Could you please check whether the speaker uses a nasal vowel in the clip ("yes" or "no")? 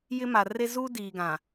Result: yes